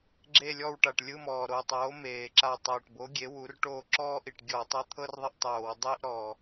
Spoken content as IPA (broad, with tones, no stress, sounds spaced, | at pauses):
ɡ͡ǁ e˦˨ lʲ ɔ˦˨ w ʈ a˨˩ ʈ lʲ ɯ˧˥˧ m ɔː˨˩ ɾ o˨˩ tˤ oː˩˥ m eː˨˩ ǁ aː˦˨ tˤ oː˨˩ ʈ b o˩˥ ɡʲ e˩˥ w u˩˥ r ʈ oː˦˨ ǁ ɔː˥ ʔ i˨˩ ʈ ɡʲ ɔː˧˩˧ tˤ a˧˥˧ t̪ʰ ɤ˥ r ðˤ i˦˨ ʔ tˤ oː˧˩˧ w dˤ iː˥ ʔ ɾ ɔ˨˩